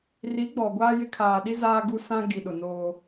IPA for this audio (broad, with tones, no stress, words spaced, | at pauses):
ri˨˦ɡ͡bɔ˨ɡʷaː˦jɪ˦ kʰaː˨ɗi˦ zaː˦ɡu˦ sã˦ ɡi˨ɗʊ˨ noː˦